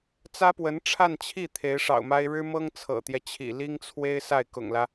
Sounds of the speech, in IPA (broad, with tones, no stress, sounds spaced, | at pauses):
t͡s ä˥ p w ə˧˥ n ʈ͡ʂʰ a˥˧ n t͡ɕʰ i˥˩ t̪ʰ e˧˥ ɪ̯ ʂ ɑ̰˨˩ ʊ̯ m a˥ ɪ̯ ɻ ɻ̩˥ m ɤ˥ ŋ t͡sʰ ɤ̰˨˩ t̪ j ɛ˦ t͡ɕʰ ḭ˨˩ l i˥ ŋ t͡sʰ w e˥ ɪ̯ s a˥˩ ɪ̯ k ʊ̰˨˩ ŋ l ä˦